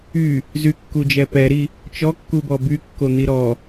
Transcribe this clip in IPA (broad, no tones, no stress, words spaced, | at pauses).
y | zykːud͡ʒɛ pɛɾi | t͡ʃɔkːubɔ bykːon̪i ɾɔ